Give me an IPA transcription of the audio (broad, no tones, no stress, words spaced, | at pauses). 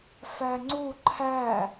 fæŋ͡ǀu ǃʰæ